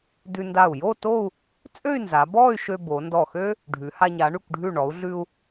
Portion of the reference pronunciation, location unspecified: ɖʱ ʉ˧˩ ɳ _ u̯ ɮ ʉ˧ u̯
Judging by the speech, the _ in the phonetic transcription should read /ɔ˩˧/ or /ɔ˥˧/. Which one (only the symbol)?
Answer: ɔ˩˧